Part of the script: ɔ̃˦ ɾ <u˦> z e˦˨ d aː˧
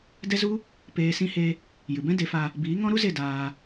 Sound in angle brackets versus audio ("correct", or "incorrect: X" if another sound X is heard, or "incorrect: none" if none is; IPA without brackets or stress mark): correct